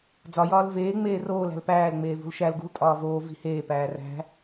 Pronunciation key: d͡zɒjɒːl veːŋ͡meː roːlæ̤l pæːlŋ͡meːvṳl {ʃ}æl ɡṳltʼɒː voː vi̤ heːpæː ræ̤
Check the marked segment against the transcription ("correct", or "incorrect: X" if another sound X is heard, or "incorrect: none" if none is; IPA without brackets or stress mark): correct